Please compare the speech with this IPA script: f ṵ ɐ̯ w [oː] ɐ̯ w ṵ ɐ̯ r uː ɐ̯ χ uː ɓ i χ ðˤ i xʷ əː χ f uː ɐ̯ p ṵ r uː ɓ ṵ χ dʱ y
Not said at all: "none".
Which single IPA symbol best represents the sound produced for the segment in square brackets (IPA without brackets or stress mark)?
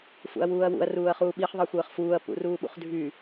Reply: uː